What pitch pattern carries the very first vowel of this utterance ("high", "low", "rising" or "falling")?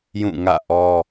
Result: falling